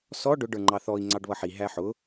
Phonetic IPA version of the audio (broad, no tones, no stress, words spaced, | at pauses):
sɔ ɖʊ ɖə˞ŋ͡ǃɑθɔi̯ ŋ͡ǀɑɖβʌħi ɦæħʊ